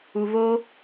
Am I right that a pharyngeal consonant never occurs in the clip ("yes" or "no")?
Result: yes